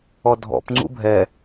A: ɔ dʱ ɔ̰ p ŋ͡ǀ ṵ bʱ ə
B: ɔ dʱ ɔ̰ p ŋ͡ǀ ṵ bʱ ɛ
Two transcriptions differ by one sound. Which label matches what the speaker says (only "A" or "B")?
B